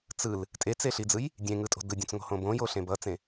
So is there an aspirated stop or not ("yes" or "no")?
no